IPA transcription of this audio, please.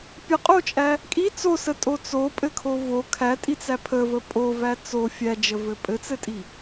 pʲəqʼot͡ʃʼæ | kʼi t͡sosətʼo t͡sopʼɘkʰo vo kʰætʼit͡sæ pʰəvə pʼovæ t͡so fʲæd͡ʒəvɘ pʼɘt͡sɘtʼi

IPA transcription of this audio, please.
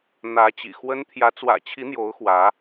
n̪ä˨˦t͡ɕḭ˨˩xwə˦n t̪ʰjä˨˦t͡swä̰˨˩t͡ɕʰi˨˦ n̪jo˨˦ʊ̯xwä˨˦

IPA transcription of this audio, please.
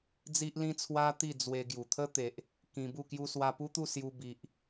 d͡zi˦ʔlĩ˦t͡sʰwa˦ t̪i˥˧ d͡zwe˧ ɡju˨˩t̪ʰə˦t̪e˨ʔ | kĩ˧bu˥˧kju˦ swa˧pu˦t̪u˥˧ sju˦ bi˨ʔ

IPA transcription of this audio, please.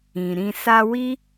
ĩ˨ɾĩ˧ sa˧wi˦

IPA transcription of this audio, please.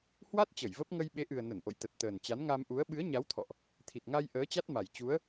hwa˦˥t̚ t͡ɕə˧˩jvə˦˥p̚ ŋə˧jɓe˨˦ʔɨ˨˩ə̯ nə˧˩nʔo̰˧˨jt̪ə˨˩t̚ t̪əː˨˩nt͡ɕa˨˦n ŋa˧mʔu˨˦ə̯ ɓɨ˨˦ə̯ɲa˨˦wt̪ʰɔ̰˧˨ʔ | t̪ʰi˨˩t̚ŋa˧j ʔəː˨˦t͡ɕa˦˥t̚ma˨˩j t͡ɕu˨˦ə̯

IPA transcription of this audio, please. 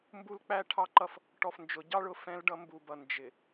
mbu˦lk͡pæ˦ ʈʰɑ˦ǃʌ˦f | ʈɔ˨fnd͡ʒʊ˨ ɟɑ˦ɭ ʊ˨ fɛ̃˦lɖʌ˦mbu˨bʌ˨ nd͡ʒɪ˨

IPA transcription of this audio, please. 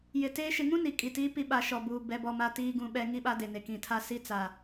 jɪ˨teː˦ ʃɪ˨ŋũ˦ ni˨kʼi˨tiː˦ pi˦ɓa˨ʃɔ˨buː˨ bɛ˦bɔ˦ma˦ tiː˦ɡũ˦ɓɛ˦ ŋi˦ɓa˦de˨ne˨ kĩ˨tʰa˦ si˦t͡sa˨

